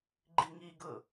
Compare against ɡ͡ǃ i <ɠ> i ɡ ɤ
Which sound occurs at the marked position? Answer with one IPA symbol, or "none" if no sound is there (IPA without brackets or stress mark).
ŋ